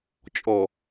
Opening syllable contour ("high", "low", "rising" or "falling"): low